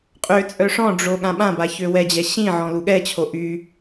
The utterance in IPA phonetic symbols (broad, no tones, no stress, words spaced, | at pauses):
qʼøt͡sʼœ ʂɔ̃ɖ͡ʐo ɠãɓãba çøwɛd͡ʑɛ ɕĩ ʕɔ̃luɠɛt͡ɕʰo ʔy